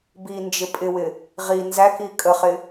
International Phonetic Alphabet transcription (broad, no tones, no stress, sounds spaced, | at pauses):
b i n d͡ʒ ɪ pʼ ɪ w ɪ | ʁ i n z æ k i kʼ ə χ ɪ